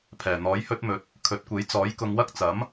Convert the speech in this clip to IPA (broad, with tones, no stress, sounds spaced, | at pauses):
pʰ ɛː˨˩ n̪ ɔː˨˥ j h ɵ˥ t̚ m ɵ˨˥ t̚ | kʰ ɵ˨˥ t̚ kʷ e˨˥ j t͡s ɔː˨˥ j k ʊ˧ ŋ w ɐ˥ k̚ t͡s ɐ˨˥ m